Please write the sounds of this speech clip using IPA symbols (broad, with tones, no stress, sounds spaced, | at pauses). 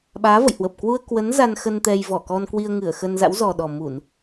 ɓ aː˨˦ v ə̰˧˨ j h w ə˨˩ p̚ k w u˧ ə̯ k w ə˨˦ n z a˧ n x ə˧ n t̪ ɛ˧ j v ɔ˧˩ k ɔ˧ n k w i˧ ə̯ ŋ ɨ˧˩ ə̯ x ə˧ n z a̰˧˥ w z ɔ˨˩ ɗ ɔ˨˩ m u˧˩˨ n